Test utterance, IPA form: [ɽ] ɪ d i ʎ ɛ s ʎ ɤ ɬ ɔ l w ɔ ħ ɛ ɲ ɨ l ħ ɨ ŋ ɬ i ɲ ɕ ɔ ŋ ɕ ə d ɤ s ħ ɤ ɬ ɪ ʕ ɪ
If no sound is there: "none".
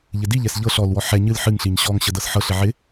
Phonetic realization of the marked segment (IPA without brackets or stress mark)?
ʎ